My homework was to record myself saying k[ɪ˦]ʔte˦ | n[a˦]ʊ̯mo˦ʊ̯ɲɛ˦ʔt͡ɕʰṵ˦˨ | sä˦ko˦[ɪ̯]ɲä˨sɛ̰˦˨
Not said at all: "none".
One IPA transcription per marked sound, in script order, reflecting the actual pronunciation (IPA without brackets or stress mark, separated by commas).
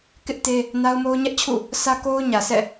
ɪ˦, a˦, ʊ̯